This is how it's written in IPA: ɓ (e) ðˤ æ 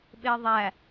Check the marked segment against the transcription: correct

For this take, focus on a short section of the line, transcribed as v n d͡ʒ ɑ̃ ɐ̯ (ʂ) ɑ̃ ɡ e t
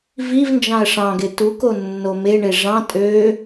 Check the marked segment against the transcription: correct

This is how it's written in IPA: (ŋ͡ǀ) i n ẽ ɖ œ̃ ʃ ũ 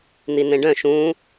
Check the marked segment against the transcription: incorrect: n̪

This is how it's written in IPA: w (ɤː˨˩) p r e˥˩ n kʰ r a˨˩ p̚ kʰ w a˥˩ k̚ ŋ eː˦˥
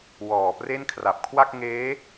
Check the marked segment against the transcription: incorrect: ɔː˨˩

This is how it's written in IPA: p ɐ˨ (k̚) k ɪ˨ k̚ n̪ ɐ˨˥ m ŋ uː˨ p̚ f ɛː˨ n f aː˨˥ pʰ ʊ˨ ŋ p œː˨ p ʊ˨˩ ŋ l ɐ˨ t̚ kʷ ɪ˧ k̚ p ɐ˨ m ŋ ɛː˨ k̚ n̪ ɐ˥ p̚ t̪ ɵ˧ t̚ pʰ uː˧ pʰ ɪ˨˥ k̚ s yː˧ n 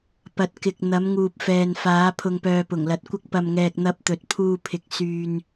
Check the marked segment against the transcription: incorrect: t̚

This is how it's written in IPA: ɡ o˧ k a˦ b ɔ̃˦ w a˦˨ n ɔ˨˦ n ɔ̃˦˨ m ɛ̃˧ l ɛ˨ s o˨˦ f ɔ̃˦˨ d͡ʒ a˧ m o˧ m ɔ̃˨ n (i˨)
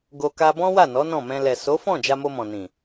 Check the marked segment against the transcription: incorrect: ĩ˨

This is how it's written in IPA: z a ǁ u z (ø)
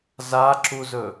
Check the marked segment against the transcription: incorrect: ɵ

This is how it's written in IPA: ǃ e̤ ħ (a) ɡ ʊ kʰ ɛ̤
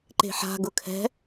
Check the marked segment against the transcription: incorrect: a̤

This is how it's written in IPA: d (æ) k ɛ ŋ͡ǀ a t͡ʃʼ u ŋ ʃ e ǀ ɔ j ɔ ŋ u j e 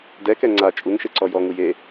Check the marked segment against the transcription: incorrect: ɛ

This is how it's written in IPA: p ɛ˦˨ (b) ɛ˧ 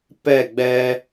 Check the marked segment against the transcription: incorrect: ɡ͡b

